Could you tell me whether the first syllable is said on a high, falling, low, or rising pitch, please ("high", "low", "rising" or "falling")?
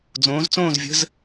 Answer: rising